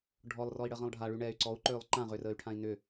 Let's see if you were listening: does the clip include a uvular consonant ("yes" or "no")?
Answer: yes